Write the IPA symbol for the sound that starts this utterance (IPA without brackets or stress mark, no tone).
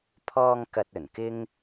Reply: pʰ